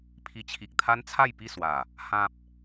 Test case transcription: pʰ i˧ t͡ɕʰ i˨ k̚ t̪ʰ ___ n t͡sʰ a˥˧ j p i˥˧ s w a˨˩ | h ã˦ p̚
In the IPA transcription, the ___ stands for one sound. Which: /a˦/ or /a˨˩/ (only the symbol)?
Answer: a˦